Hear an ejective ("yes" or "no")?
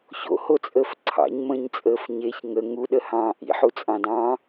yes